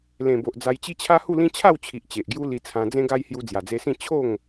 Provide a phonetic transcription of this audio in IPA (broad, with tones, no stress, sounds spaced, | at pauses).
l ẽ˨˩ b o˨ ʔ d͡z a˧ j t͡ɕ i˦ t͡ɕʰ a˦ h u˥˧ l ĩ˦ t͡ɕʰ a˥˧ w t͡ɕʰ i˨ ʔ t͡ɕ e˨ ʔ ɡ j u˦ l i˧ t͡sʰ ã˧ d͡z ẽ˦ ɡ a˦ j h j u˧ d͡z j a˨˩ d͡z e˧ s ĩ˥˧ t͡ɕʰ o˥˧ ŋ